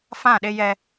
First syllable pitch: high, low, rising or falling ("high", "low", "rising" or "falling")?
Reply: falling